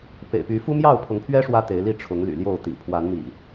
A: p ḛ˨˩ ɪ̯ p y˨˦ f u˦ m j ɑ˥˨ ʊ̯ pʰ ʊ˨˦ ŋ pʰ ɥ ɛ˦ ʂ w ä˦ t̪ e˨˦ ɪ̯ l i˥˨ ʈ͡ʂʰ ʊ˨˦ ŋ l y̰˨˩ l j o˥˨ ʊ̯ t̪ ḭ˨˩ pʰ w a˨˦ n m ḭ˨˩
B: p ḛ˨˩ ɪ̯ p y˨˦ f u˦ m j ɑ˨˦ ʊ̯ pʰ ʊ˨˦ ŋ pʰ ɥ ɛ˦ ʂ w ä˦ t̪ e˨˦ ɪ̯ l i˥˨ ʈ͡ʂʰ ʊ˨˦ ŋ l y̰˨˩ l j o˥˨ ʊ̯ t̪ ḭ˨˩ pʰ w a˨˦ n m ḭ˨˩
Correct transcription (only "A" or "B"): A